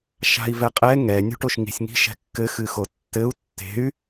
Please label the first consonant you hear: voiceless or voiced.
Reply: voiceless